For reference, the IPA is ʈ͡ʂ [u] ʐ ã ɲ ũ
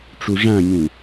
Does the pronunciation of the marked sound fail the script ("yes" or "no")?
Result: no